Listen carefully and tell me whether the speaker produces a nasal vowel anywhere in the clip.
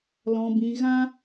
yes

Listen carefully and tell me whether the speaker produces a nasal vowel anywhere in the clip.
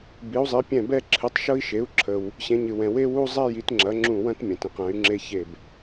yes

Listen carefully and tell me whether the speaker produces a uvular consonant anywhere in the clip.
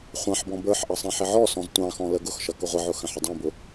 yes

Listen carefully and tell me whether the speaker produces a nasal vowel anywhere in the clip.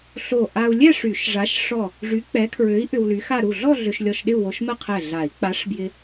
no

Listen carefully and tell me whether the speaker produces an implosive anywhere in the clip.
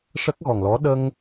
yes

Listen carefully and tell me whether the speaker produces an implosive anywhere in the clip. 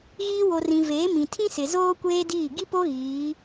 no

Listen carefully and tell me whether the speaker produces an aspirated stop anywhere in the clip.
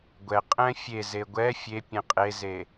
no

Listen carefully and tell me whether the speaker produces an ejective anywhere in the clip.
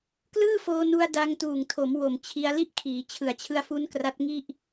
no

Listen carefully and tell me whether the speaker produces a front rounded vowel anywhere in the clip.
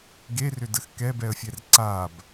yes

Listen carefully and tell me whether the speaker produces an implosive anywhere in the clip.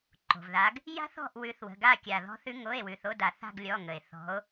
no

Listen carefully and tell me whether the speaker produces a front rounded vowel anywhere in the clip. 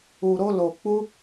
no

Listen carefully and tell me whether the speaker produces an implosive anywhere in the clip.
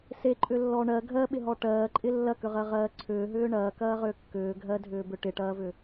yes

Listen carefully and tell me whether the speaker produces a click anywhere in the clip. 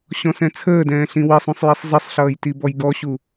no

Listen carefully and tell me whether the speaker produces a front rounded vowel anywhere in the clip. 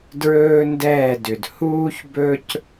yes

